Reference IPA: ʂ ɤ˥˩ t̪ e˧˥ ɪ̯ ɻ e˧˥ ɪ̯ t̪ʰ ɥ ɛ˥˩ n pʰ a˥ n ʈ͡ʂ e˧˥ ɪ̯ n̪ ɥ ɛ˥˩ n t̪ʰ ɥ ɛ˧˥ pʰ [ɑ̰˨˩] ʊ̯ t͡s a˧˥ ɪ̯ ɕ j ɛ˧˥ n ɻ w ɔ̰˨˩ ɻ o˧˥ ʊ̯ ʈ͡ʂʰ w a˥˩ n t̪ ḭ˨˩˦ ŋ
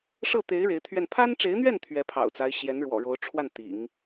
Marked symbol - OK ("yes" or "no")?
yes